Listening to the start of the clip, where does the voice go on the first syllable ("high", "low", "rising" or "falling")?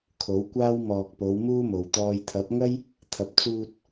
rising